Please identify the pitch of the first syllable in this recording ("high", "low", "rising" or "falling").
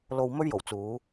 low